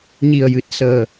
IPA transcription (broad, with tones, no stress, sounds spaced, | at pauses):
ɲ i˨˩ ə̯ j ɨ˨˩ t̚ s əː˨˩